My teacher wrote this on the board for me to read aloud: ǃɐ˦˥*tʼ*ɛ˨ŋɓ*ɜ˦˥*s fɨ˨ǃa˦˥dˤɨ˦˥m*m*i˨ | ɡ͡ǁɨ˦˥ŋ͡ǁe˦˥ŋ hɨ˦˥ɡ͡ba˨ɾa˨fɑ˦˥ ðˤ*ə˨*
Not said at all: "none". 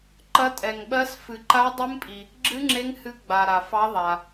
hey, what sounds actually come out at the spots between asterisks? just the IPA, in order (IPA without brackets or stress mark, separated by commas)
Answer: tʼ, ɜ˦˥, pʼ, a˨